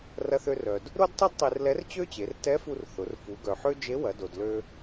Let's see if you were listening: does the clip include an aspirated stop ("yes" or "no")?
no